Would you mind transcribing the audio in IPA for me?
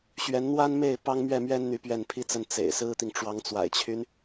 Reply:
ɕ ɥ ɛ˧˥ n n̪ w a˥ n m e˥˩ ɪ̯ p ɑ˥ ŋ m ɥ ɛ˥˩ m ɥ ɛ˥ n n̪ y˧˥ p ɥ ɛ˥˩ n pʰ i˥ t͡s ə˥˩ n t͡s ḛ˨˩ ɪ̯ s ɹ̩˥ t̪ i˨ ŋ ʈ͡ʂ w ɑ˧˥ ŋ t͡s w a̰˨˩ ɪ̯ t͡ɕʰ y˦ n

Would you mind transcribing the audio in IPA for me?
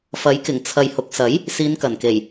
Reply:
f ɐ˨˥ j k ɪ˨˩ ŋ t͡sʰ ɐ˨ j h ʊ˨˥ k̚ s ɐ˨˥ j | s iː˨˧ n k ɐ˨˩ n k e˨˩ j

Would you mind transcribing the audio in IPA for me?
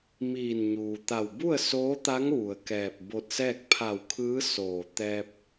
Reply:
m iː˧˩ n ɲ uː˩ t̪ a˧˩ w b u˥˨ ə̯ s oː˧˥ t̪ a˧˥ ŋ ʋ u˩ ə̯ k ɛː˧˩ p̚ b o˧ t̚ s ɛː˥˨ k̚ pʰ a˧˩ w kʰ ɯː˧˥ s oː˧˩ t̪ ɛː˧ p̚

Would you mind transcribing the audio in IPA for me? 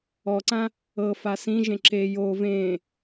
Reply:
ɔ ǀ ã | ɤ f a s ĩ ʒ ẽ ǁ e j o v ẽ

